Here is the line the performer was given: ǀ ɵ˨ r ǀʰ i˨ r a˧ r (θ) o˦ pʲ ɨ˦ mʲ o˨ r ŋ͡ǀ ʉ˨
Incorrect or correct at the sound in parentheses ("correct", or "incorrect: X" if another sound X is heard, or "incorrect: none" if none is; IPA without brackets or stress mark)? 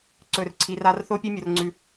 correct